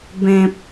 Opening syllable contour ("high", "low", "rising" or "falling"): high